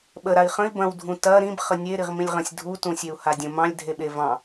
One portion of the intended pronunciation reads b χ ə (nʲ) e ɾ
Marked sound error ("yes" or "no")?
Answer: no